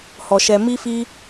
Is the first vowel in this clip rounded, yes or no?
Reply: yes